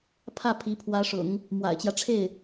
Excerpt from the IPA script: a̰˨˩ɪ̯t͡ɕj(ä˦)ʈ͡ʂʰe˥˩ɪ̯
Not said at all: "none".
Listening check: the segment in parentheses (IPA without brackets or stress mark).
ä˦